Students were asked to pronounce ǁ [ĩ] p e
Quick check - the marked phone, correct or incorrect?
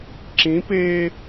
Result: correct